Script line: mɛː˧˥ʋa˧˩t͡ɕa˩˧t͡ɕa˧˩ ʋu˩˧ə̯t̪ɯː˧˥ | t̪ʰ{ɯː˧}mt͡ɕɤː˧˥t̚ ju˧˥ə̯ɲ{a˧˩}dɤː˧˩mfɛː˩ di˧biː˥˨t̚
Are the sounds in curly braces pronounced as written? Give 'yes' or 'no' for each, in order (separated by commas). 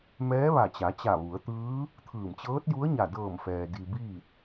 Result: no, yes